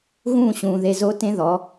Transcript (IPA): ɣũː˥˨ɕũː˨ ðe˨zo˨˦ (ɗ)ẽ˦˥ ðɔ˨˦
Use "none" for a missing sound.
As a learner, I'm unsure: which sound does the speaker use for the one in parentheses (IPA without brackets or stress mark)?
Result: t